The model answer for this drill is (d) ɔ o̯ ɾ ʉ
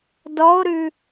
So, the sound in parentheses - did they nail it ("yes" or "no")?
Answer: yes